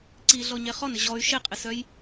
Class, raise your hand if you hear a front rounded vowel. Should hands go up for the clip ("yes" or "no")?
yes